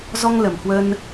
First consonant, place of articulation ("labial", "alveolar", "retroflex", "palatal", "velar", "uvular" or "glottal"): alveolar